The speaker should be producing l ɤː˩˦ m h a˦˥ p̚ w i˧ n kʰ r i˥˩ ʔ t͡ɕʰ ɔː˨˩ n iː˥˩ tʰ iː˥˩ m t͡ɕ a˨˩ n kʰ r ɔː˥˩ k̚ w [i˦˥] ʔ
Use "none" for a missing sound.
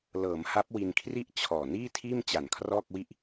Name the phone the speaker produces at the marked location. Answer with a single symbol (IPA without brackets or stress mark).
i˥˩